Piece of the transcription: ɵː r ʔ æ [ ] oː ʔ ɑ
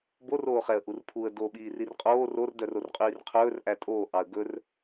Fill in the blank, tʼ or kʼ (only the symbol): tʼ